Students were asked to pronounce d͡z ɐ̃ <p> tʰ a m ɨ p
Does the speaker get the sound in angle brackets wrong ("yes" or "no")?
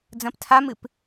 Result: no